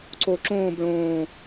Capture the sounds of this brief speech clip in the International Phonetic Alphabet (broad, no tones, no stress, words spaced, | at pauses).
ǀoǁõːb ɭõː